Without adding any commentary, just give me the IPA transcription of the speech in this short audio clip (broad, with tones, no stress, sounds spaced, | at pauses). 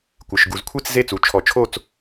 kʷ ɨ˩˧˩ ʃ ɡ u˨˩˦ z kʷʰ i˥˨ t͡s z e˥˨ t͡s u˩˧˩ t͡ʃʰ ɔ˨˩˦ t͡ʃʰ o˥˨ t͡s